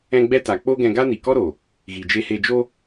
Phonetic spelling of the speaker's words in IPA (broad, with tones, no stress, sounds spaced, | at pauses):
ɛ̃˦ ɡ͡b ɛ˦ t a˨ k͡p o˦ ɡ ɛ̃˧ ɡ a˦ n i˨ k ɔ˦ ɾ o˨ | ɣ i˨ d͡ʒ e˧ h e˧ d͡ʒ o˦